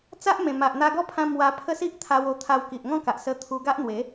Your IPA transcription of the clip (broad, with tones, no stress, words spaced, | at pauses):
t͡sa˦ʔmẽ˨˩ma˨ʔ n̪a˧ɡɔ˥˧pʰã˧ mwa˧pʰə˦ si˦ʔ t̪ʰa˧wo˧t̪ʰa˧w ki˨ʔŋɔ̃˥˧ka˨ʔ sə˧ t̪ʰu˧ɡa˦ʔn̪we˨˦